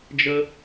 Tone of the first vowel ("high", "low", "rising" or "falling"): high